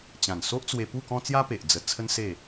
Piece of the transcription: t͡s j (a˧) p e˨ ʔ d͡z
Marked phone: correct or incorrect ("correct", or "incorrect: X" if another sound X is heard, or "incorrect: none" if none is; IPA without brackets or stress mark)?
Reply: incorrect: a˦